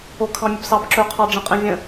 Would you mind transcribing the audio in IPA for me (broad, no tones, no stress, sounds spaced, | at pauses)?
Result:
o kʰ ɑ̃ mʲ ə b s ɑ b ǁ ɵ qʰ ɑ ɖ͡ʐ ə̃ qʼ ɛ̃ vʲ ə̃